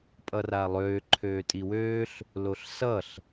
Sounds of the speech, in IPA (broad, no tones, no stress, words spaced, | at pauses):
pʼʌralˠøː ǃʰøːtʼiwøːɬ | loɬsʌɬ